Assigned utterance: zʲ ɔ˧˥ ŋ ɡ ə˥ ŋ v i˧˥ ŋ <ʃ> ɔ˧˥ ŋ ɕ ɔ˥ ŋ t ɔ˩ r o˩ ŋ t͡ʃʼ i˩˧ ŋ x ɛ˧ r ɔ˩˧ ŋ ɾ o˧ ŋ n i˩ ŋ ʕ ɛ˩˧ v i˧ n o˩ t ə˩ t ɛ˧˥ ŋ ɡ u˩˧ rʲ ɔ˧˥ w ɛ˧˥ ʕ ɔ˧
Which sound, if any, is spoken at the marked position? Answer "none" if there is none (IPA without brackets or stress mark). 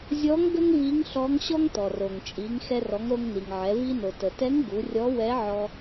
ɬ